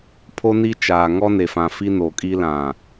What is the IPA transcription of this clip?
pʰo˦ni˦t͡ʃaː˨ ŋɔ˦ne˨fã˨ fi˦no˨kʼi˦ lã˨

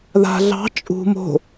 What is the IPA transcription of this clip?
ða̤ ɮɑ̤ t͡ʃʼṳ mo̤

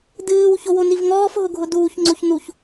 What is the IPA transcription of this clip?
dɨːw çowonivŋɔːf ɦʊɡʱʊduːç ŋ͡ǀoçnuç

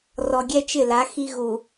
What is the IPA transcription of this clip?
rɔ˨ɡʲɛ˦ t͡ʃɪ˦˨la˨˦ xi˦ɣu˨

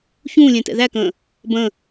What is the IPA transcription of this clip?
çũːlʲɛ̃ tɛ̰ðækə̃ː | bə̃

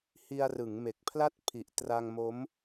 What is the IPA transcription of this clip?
hi˧a̯rɯ˩˦ŋme˨˩k̚pʰla˥˩t̚ pʰi˨˩ʔtra˧ŋmo˦˥m

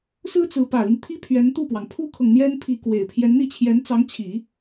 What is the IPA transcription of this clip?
sɹ̩˥t͡sɹ̩˧˥ pä˨˩li˦ŋt̪ʰi˥pʰɥɛ˧˥n t̪u˥˩pwɑ˩ŋ pʰu˥kʰɤ˨ŋ n̪jɛ˥npʰi˧˥ kwe˨˩ɪ̯ pʰjɛ˧˥nn̪i˥˩t͡ɕʰjɛ˧˥nt͡sɑ˧˥ŋ t͡ɕʰi˨˩˦

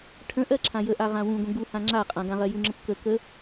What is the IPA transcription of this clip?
ʈʰə̃ʔɜ ǁʰãjəʔa ʁãwũɡʷə̃ ɡuhã ŋ͡ǁaqʼã ɡãʁɜjuŋ͡ǁə̃p kə kə

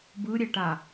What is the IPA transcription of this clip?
bɯɾʲɛʈa

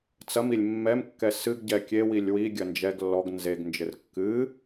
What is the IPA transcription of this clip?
t͡sɐmilʲ mːɛmkːɛ sɨɡɟɛ kʲewilʲ wiɡʲɐ nd͡ʒɛɡ lːɔɡ nzeɡnd͡ʒɘr kːɨ

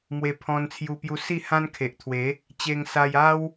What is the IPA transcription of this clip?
mwe˧pʰɔ̃˧nt͡sʰju˧pju˧ si˥˧hã˦nkʰe˨ʔt̪ʰwe˨˦ | t͡ɕe˧ŋsa˧ja˦w

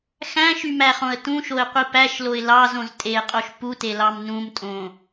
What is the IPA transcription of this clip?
xæ̃ʃymæχõə̯ tũʃoɪ̯qʷi pæʃloɪ̯ lɑzõz tʼeqʼoʃ putelɑm nũmtʼõ

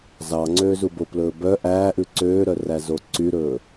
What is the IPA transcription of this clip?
zɑ ŋ͡ǀøːzuboplɵː bœ ʔæːʔʉ ǀøːɾœ ræzoǀyɾɵː

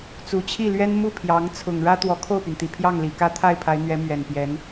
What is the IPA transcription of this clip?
t͡su˨˩t͡ɕʰi˥˩lɥɛ˥n mu˥˩pʰjɑ˧˥ŋ t͡sʰʊ˨˩ŋɻä˥ t̪wɔ˧˥kʰo˥˩ʊ̯py˩nt̪i˨˩ pʰjɑ˥˩ŋli˨˩kä˥˧ t̪ʰa˥˩ɪ̯pʰa˧˥ɪ̯n̪ɥɛ˧˥ mɥɛ˨˩npjɛ˧˥n

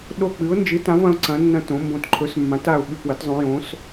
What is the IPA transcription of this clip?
ɗo˦˨k͡pɨ˨˥ʊ̯nd͡ʒɨ˨˥tã˨˥v ɐ̃˨˥ʊ̯ǀɐ̃˨˥nːɐ̃˦˨ tõ˨˥mbõ˦˨t ǃʰɵ˨˥smːã˨˥t a˦˨ʊ̯ɓʉ˦˨pwɐ˨˥tzˤõ˨˥ jõ˨˥s

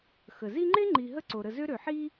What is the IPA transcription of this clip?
xə˩zi˦ŋ͡ǃe˥ ŋ͡ǃi˨ ɦə˦ǀo˩ɾə˨ zø˥ ɾø˩ħi˦

